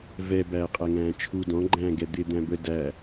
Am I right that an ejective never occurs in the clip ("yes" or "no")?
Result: no